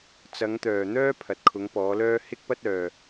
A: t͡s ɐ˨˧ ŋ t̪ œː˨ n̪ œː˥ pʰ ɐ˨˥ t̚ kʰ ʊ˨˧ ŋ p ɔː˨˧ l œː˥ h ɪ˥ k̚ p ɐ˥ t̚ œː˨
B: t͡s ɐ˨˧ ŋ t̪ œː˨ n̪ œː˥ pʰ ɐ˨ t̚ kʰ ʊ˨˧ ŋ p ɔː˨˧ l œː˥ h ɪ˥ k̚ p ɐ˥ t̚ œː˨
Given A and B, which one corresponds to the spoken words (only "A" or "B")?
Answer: A